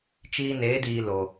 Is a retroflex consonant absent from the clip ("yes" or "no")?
yes